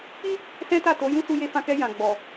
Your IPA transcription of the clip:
k͡p i˦ | s ɛ̃˦ t a˦˨ t o˨˦ j ũ˦ s u˧ j e˧ f ã˧ k ɛ˧ j ã˨ ɡ͡b ɔ˨

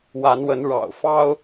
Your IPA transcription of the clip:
w a˨˦ n w ə˨˦ n ɻ ɑ̰˨˩ ʊ̯ f ɑ˦ ʊ̯

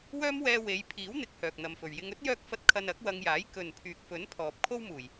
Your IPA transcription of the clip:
w œː˥ m w ɛː˧ w e˨˧ j pʰ iː˨˥ w n̪ ɪ˧ k̚ h œː˨ k̚ n̪ ɐ˨ m f ɵ˨˩ ɥ j ɪ˧ ŋ ɵ˥ t̚ j œː˧ k̚ f ɐ˧ t̚ kʰ ɐ˧ n ɐ˨˥ k̚ w ɐ˧ ŋ j aː˨˥ j k ɵ˨ n pʰ yː˨ k̚ f ɵ˨˥ n pʰ ɔː˨ p̚ kʰ o˥ w m uː˨˩ j

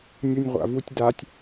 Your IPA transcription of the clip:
nʲ u nʲ ʁʷ a̰ v u tʲ d a tʲ

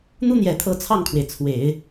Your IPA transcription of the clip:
n̪ u˥ n̪ j ɛ˨˩ t̪ʰ ɤ˧˥ t͡sʰ ɑ˥˩ ŋ kʰ w e˩ ɪ̯ t͡sʰ w e˨˩˦ ɪ̯

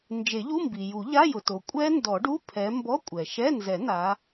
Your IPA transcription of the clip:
n d͡ʒ e˨˩˦ ʎ u˧˥˧ m b i˩ j u˨˩˦ ʎ a˧˥˧ j ʊ˩ t o˩ kʷʼ ɛ˦˥ n d ɔ˨˩˦ ɖ u˧˥˧ pʰ ɛ˨˦ m b ɔ˧˥˧ kʷʼ ɛ˩ ʃ ɛ˧˥˧ n z ɛ˨˩˦ n a˨˦

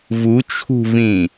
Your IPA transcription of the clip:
v u t͡ʃʰ ṳ v ĩ

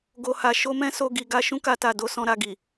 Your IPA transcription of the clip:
ɡ o˨ h a˨ ʃ o˧ m ɛ̃˦ s o˧ ɡ i˧ ɡ a˧ ʃ ũ˦ k a˧ t a˨ d o˧ s ɔ̃˧ ɾ a˧ ɡ i˨

